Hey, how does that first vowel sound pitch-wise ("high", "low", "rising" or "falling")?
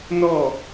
falling